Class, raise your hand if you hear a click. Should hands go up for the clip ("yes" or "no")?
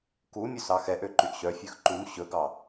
yes